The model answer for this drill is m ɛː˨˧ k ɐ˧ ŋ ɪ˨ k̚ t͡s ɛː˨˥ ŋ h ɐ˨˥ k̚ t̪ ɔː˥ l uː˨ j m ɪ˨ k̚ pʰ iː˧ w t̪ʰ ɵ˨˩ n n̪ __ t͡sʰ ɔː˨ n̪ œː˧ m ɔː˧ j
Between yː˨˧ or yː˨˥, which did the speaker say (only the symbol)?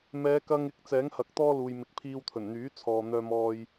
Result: yː˨˥